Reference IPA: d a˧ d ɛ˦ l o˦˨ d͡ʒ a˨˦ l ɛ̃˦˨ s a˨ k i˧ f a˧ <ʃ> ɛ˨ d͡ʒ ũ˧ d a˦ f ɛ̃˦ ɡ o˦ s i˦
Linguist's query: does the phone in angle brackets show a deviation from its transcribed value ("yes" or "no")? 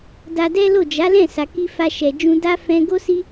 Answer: no